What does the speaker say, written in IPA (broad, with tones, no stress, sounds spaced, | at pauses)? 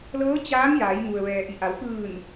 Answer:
l ɤː˧˥ t͡ɕ aː˧˥ ŋ j aː˩˧ j ŋ u˩ ə̯ ʋ ɛː˩ ʔ i˩ ʔ a˩˧ w k ɯː˧˩ n